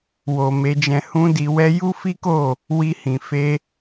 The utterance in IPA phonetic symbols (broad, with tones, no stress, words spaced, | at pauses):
wo˨ me˧d͡ʒɛ̃˧ hũ˦di˧wɛ˦ ju˦fi˦ko˦˨ | wi˧ hĩ˨ fe˧